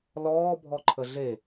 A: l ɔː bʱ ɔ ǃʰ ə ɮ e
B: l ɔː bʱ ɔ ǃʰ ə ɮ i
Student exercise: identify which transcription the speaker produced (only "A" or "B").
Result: A